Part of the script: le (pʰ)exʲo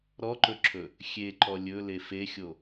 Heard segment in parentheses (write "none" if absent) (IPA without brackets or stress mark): f